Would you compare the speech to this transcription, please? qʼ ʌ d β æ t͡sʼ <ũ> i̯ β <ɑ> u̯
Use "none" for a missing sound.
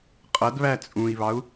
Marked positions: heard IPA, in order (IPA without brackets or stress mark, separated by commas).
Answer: ũ, ɑ